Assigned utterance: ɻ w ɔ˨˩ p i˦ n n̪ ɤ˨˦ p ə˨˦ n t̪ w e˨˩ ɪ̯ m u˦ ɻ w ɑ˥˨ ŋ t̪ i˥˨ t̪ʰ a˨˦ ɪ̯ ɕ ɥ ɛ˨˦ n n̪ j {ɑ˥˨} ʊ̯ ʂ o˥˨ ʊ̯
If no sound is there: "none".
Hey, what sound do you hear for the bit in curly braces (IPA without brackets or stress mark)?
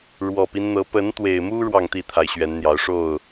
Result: ɑ˨˦